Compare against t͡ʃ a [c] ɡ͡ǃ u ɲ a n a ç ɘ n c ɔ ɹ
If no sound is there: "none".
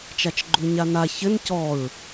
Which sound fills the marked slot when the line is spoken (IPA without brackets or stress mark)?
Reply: t͡ʃ